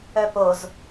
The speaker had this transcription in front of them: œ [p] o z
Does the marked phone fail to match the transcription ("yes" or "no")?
no